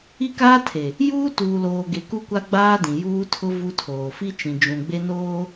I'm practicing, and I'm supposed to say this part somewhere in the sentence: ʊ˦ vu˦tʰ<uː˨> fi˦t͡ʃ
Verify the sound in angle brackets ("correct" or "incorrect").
incorrect